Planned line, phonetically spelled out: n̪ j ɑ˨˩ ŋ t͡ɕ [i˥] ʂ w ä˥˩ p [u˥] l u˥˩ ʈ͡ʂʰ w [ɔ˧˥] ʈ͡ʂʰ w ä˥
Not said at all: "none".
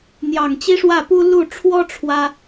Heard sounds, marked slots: i˥, u˥, ɔ˥

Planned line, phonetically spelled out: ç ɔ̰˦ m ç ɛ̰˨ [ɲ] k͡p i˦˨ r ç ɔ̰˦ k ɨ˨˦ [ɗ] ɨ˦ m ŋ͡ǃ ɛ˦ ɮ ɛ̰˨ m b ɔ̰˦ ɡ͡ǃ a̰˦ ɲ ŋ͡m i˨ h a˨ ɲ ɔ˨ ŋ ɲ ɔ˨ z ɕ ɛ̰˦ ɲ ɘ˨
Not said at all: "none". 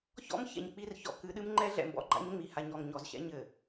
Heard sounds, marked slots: ɲ, ɗ

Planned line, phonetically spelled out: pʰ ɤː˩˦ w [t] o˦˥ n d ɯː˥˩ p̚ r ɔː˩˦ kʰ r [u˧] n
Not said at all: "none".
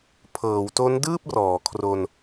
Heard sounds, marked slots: t, o˧

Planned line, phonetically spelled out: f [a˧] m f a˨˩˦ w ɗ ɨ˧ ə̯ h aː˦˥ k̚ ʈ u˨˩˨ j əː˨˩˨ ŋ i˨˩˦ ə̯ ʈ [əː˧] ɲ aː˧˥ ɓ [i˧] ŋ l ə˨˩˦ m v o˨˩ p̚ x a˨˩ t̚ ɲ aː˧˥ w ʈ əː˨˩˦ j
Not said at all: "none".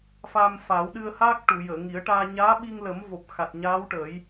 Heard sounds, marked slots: a˧, aː˧, i˧

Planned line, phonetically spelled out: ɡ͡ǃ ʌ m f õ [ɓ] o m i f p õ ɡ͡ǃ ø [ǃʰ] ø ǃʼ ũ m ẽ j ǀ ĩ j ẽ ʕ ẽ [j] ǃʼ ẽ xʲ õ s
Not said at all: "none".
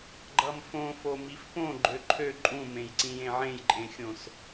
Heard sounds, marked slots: f, ǃʰ, j

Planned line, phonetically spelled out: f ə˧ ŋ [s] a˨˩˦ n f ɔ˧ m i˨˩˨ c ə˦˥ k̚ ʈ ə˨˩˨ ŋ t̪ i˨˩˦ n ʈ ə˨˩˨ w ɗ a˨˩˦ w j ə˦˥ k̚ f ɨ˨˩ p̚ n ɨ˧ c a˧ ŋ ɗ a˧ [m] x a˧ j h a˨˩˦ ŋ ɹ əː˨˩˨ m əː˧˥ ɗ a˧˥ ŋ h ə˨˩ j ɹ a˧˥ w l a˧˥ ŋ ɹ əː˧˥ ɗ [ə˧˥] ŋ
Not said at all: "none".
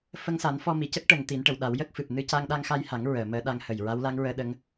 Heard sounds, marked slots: s, ŋ, ə˧˥

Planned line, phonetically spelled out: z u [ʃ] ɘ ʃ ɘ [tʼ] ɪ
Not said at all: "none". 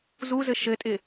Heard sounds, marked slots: z, tʼ

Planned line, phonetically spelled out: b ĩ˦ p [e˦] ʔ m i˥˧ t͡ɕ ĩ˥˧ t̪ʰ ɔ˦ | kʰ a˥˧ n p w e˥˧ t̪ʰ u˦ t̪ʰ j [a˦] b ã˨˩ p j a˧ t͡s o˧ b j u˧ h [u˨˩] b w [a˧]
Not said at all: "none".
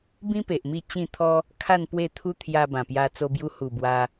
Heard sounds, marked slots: e˨, a˧, u˨˩, a˧

